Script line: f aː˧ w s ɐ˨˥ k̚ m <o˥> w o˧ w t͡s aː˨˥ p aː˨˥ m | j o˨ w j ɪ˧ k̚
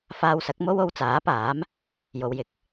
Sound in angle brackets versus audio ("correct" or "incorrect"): correct